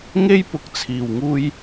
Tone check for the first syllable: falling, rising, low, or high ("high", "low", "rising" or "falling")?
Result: high